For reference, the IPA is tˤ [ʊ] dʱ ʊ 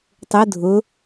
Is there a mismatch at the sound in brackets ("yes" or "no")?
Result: no